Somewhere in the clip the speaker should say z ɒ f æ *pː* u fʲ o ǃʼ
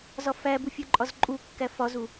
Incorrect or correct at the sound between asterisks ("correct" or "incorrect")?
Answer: incorrect